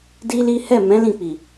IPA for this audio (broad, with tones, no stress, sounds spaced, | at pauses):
d i˦ l i˦ h ɛ˦˨ m ɛ̃˨˦ l ĩ˦˨ k͡p i˨